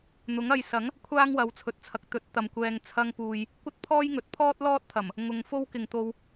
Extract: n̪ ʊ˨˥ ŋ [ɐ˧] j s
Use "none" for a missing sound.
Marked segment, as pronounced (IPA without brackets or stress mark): ɐ˧